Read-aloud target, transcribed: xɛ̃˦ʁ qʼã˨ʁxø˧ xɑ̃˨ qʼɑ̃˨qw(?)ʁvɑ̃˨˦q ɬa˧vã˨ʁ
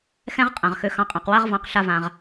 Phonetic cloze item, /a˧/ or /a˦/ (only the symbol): a˦